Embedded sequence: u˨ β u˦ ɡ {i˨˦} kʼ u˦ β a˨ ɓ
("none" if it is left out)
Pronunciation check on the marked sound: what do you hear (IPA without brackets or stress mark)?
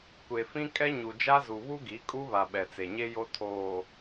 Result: i˨˦